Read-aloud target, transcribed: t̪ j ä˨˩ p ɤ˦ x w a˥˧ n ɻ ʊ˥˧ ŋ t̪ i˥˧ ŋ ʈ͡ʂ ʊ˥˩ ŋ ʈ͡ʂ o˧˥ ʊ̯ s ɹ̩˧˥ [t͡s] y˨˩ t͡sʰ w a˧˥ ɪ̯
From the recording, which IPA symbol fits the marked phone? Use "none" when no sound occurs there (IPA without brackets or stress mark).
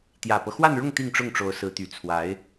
t̪